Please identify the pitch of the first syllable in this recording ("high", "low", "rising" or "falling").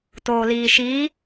low